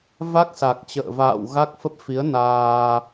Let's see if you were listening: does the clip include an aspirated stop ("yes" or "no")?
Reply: no